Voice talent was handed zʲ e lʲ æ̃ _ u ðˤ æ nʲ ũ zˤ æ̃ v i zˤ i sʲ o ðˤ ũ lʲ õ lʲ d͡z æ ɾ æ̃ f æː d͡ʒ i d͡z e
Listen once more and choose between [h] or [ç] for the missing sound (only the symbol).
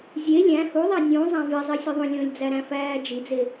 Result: h